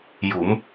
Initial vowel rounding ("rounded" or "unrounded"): rounded